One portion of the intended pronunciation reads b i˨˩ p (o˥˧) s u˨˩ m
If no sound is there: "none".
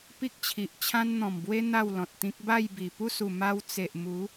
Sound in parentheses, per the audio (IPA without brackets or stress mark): u˥˧